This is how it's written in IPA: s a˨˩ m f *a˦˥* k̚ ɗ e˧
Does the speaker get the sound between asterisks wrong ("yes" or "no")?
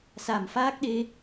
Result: yes